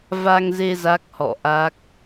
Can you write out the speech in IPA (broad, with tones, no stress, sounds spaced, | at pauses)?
v a˧ ŋ z e˧ z a˦˥ k̚ h ɔ̰˧˨ ʔ a˦˥ k̚